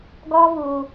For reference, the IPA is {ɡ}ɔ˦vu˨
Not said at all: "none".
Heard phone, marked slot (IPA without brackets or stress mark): ɡ